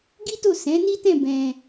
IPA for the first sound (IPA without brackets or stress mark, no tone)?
ɡ